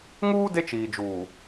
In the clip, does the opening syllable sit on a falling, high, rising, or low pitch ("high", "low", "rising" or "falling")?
high